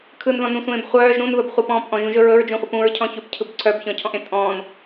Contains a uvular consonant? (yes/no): yes